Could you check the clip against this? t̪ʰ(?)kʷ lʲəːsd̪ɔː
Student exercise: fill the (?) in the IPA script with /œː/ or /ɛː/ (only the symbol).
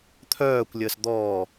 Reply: œː